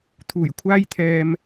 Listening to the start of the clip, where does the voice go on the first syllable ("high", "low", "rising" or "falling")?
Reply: low